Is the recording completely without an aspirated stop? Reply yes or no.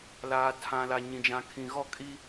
no